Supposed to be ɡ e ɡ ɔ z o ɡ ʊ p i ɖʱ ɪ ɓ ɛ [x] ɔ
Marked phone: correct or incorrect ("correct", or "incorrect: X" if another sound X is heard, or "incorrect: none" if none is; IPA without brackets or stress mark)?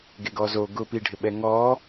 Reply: incorrect: ŋ